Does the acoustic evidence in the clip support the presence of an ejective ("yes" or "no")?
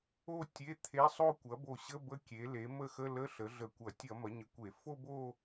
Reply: no